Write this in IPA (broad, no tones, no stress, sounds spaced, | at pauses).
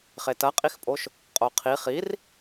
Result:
χ e t ɐ qʼ i x pʼ o ʃ | qʼ o qʰ i χ i r